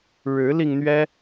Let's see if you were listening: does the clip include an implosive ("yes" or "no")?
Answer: no